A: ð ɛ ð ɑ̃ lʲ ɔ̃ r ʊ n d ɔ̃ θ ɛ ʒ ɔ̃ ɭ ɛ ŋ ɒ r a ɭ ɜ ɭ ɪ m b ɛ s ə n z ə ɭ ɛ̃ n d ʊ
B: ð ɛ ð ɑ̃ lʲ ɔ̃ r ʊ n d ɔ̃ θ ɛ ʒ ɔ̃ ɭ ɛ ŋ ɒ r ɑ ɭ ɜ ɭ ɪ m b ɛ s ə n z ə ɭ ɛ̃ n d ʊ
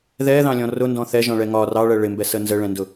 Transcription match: B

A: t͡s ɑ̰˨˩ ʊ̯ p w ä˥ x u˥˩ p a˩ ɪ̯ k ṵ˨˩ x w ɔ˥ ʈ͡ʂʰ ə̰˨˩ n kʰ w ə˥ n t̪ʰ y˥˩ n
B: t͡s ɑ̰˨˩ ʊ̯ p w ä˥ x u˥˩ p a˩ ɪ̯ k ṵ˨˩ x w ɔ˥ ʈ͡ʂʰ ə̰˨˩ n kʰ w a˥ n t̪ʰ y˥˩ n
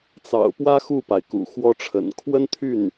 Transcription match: A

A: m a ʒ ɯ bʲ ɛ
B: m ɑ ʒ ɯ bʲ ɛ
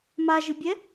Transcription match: A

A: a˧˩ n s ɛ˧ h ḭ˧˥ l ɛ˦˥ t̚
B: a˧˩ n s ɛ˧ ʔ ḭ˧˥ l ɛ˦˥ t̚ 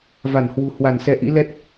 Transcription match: B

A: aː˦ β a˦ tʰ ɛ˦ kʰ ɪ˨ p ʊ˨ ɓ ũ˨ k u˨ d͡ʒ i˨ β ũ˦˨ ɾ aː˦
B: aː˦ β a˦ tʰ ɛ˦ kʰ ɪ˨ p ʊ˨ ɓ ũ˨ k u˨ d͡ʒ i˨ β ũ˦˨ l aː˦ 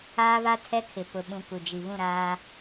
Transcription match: A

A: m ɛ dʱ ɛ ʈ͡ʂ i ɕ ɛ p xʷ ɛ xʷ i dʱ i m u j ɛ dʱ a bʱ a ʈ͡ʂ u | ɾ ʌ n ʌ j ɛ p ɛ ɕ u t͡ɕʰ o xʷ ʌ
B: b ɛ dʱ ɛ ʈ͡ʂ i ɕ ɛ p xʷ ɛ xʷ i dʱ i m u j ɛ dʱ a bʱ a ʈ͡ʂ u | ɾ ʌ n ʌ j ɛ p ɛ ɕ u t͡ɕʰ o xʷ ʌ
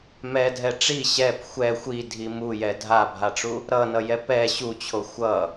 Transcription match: A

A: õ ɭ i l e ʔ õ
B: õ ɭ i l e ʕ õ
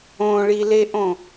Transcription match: A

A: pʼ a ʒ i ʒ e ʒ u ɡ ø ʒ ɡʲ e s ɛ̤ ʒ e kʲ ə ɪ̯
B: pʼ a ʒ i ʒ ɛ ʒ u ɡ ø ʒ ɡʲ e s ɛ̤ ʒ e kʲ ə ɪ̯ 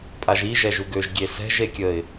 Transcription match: B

